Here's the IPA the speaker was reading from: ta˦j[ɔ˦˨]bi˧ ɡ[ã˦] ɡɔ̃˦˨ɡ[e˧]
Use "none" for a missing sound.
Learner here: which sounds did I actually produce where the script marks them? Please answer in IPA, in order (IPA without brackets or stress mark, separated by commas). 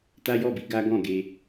ɔ˦˨, a˦, e˧